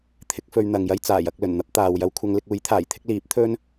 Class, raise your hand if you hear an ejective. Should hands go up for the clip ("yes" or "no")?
no